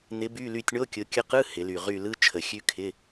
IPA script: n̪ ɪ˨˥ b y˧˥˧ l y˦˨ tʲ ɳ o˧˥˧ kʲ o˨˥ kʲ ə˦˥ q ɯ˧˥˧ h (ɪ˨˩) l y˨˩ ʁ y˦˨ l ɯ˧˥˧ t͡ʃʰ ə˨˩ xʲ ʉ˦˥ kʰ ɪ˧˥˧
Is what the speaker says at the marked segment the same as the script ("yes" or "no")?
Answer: no